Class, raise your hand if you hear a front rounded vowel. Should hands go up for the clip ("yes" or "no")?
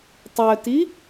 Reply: yes